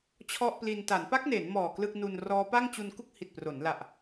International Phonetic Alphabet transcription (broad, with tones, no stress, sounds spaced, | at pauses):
t͡ɕʰ ɔ˥˩ ʔ p l i˧ n t a˩˦ n p a˦˥ k̚ n eː˩˦ n m ɔː˨˩ k l ɯ˥˩ k̚ n u˧ n r ɔː˦˥ p a˥˩ ŋ t͡ɕ u˧ n k u˥˩ k̚ h i˨˩ t̚ p r o˩˦ n l a˨˩ ʔ